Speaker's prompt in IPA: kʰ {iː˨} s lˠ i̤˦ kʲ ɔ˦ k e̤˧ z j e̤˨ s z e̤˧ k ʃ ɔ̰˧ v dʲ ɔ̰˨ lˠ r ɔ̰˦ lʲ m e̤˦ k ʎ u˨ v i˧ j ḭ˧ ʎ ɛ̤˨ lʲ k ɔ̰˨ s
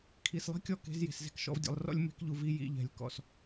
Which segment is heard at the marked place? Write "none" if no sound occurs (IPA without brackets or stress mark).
i˨